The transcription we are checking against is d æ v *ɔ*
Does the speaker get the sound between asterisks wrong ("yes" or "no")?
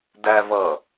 yes